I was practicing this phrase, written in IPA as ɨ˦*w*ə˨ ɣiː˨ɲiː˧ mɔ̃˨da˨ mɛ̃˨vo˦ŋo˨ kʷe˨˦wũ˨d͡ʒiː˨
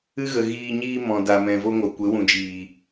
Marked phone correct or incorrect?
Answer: incorrect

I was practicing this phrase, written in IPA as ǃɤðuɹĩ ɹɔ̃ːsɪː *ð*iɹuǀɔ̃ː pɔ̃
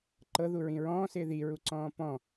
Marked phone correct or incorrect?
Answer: correct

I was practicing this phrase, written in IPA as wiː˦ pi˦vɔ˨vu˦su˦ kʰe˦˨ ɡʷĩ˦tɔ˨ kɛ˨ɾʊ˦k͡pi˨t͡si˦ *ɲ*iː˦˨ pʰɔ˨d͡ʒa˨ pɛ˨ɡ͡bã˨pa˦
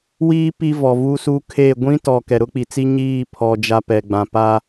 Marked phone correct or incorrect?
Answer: correct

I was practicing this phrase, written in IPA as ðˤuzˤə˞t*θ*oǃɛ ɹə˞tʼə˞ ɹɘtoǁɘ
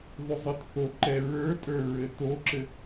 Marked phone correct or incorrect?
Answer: correct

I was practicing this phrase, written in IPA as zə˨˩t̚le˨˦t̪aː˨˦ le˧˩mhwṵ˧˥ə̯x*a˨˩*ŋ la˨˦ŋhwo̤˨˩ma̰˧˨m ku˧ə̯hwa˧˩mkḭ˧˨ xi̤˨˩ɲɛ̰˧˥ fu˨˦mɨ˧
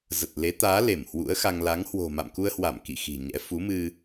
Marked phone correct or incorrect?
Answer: incorrect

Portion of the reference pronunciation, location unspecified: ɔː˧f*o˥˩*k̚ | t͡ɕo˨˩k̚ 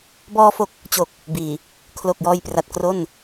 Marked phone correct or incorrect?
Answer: incorrect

